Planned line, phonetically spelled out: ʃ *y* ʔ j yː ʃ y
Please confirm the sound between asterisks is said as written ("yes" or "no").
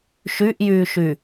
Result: yes